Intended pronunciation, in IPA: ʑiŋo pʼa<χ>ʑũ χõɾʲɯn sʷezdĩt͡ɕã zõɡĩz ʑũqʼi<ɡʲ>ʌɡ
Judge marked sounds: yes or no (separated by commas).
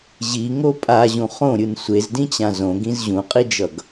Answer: no, no